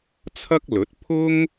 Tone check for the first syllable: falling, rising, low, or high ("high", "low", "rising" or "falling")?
high